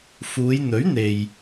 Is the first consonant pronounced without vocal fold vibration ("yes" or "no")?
yes